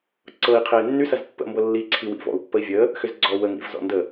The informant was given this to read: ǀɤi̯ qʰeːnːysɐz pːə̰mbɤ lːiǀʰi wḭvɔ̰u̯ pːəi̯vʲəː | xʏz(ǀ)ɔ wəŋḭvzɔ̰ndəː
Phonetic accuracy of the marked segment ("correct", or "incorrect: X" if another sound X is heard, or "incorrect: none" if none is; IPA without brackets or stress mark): incorrect: ɡ͡ǀ